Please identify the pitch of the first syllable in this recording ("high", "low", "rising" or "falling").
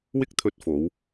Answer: high